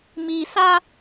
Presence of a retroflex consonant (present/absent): absent